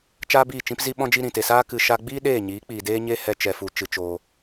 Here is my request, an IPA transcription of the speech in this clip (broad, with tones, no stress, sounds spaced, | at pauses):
t͡ʃ aː˦ b iː˦˨ t͡ʃ ĩ˦ p z i˧ ɓ ɔ̃˧ d͡ʒ i˧ ɾ ĩ˨ t e˨ s aː˦ k ɨ˧ ʃ a˧ ɡ͡b iː˦ ɗ eː˦˨ ɲ iː˨˦ k͡p iː˨ d eː˦ ɲ e˦ h ɛ˦ t͡ʃ ɛ˧ f u˧ t͡ʃ ɨ˧ t͡ʃ oː˧